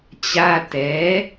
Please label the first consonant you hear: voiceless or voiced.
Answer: voiceless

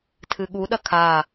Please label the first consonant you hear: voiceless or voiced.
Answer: voiceless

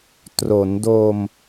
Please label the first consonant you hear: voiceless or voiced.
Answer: voiceless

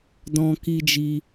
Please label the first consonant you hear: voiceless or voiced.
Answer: voiced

